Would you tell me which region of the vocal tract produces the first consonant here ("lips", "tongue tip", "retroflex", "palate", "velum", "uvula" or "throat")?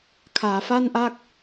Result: velum